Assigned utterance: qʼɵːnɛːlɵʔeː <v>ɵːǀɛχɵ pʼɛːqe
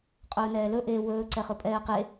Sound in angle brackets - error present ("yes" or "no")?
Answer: yes